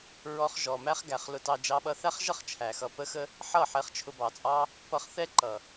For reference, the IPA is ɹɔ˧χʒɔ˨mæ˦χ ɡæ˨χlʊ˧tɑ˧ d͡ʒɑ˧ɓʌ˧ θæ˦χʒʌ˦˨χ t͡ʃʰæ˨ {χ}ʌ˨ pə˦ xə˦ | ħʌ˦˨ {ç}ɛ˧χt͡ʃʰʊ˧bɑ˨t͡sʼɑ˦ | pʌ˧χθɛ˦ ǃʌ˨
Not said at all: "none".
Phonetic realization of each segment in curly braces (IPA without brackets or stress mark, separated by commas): x, ħ